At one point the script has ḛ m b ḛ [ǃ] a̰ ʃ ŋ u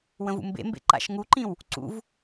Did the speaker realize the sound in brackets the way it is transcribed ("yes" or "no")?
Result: yes